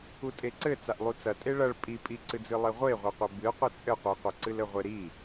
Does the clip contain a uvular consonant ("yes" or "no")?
yes